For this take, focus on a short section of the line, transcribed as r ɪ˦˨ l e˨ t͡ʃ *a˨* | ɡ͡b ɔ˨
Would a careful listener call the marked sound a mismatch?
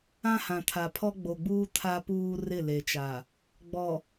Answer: no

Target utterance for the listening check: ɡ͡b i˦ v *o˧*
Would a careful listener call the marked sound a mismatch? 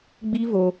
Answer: no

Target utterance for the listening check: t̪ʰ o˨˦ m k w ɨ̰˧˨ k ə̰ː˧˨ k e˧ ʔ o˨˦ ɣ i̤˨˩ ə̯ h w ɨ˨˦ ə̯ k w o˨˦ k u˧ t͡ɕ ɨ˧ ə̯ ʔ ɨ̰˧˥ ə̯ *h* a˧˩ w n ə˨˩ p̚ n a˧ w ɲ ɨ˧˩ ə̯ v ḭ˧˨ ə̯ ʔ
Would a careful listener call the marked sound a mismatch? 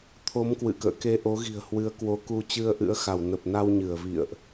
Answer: yes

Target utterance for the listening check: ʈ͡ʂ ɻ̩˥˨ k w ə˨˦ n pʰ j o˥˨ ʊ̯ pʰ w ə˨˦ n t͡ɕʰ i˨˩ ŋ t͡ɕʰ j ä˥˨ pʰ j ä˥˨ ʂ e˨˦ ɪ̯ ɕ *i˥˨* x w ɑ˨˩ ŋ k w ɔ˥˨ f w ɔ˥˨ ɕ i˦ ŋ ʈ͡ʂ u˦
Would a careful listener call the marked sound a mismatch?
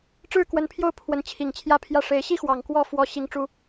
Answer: yes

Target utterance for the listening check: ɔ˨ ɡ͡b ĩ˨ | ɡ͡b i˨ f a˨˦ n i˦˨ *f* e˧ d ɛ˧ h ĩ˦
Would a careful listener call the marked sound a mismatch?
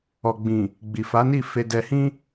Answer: no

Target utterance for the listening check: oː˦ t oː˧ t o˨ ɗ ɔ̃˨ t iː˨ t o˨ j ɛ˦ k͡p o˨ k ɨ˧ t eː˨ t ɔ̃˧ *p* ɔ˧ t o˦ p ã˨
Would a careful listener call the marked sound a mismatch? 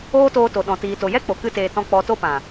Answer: yes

